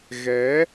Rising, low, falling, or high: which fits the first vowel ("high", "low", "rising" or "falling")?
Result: rising